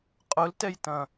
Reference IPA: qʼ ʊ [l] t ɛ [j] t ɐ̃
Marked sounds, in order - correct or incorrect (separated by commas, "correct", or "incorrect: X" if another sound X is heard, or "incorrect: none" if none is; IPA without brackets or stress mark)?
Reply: correct, correct